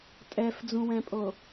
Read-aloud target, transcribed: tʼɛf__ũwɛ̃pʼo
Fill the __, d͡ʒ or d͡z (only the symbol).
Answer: d͡z